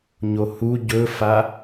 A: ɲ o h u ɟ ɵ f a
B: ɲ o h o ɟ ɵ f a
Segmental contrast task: A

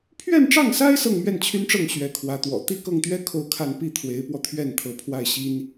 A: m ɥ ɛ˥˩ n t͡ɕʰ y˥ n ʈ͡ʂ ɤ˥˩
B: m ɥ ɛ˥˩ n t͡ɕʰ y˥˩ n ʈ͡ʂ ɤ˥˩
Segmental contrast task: A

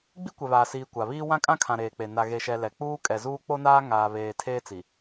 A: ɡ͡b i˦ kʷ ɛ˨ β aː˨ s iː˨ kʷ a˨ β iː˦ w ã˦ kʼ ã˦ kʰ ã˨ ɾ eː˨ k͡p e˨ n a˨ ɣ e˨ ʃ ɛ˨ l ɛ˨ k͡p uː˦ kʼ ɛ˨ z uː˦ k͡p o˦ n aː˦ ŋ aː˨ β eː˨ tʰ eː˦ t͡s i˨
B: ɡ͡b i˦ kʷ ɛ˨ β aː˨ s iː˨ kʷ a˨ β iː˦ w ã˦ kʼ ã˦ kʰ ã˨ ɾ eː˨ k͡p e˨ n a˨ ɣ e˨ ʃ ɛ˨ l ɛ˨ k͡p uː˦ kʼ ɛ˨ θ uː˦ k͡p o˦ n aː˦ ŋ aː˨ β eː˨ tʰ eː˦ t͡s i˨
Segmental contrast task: A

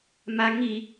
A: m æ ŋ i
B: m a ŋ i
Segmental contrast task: B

